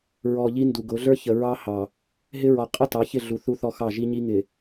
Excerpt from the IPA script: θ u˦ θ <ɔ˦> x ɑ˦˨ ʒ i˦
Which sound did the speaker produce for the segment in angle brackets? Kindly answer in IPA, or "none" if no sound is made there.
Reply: ɔ˦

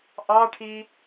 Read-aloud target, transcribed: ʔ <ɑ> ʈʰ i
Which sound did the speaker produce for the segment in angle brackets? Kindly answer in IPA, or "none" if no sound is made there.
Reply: ɑ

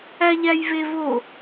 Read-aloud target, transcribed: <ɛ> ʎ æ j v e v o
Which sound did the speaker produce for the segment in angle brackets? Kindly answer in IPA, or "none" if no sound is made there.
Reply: æ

